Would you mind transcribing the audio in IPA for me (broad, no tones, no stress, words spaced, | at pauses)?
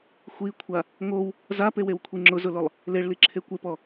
xʷikʷʰa | ŋow | zapewewkʷʰi ŋ͡ǁʊzʊlʊlˠ | leɭliǁʰe kʷepɔ